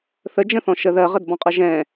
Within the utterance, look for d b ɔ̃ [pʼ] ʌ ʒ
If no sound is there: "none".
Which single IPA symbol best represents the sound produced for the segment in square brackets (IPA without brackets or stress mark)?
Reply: qʼ